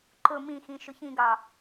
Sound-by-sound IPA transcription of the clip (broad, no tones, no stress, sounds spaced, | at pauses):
ǃ ʊ m ĩ x ĩ ʃ ʊ ç ĩ ɡ ɑ